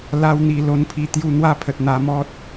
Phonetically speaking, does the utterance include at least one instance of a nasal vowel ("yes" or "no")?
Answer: no